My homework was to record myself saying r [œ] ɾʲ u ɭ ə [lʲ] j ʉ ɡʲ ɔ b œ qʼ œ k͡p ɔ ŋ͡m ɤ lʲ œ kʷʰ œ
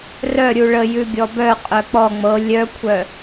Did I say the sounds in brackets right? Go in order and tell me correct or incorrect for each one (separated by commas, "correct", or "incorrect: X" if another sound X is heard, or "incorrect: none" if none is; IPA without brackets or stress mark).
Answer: correct, incorrect: none